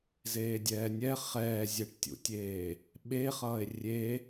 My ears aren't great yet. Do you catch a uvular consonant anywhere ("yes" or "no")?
yes